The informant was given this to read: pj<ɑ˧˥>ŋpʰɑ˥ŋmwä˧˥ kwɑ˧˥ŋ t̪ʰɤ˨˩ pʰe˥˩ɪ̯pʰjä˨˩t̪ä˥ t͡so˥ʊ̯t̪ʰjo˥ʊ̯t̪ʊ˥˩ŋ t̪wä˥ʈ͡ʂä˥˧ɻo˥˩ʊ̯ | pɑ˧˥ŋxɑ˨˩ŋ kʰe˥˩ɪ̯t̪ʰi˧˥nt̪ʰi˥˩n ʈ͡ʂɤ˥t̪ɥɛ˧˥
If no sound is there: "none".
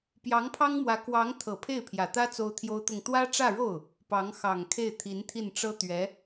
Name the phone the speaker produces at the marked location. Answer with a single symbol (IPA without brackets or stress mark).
ɑ˧˥